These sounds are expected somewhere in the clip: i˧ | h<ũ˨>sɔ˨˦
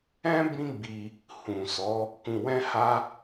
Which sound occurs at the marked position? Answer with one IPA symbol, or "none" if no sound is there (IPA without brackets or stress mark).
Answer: ũ˨